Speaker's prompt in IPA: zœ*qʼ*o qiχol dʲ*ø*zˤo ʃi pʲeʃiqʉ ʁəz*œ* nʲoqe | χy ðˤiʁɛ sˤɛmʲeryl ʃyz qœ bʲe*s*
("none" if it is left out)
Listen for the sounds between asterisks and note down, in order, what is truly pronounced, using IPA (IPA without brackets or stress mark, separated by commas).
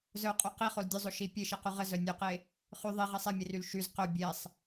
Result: qʼ, ø, œ, sˤ